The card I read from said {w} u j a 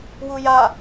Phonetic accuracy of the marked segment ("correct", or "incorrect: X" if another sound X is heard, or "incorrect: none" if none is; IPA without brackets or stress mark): correct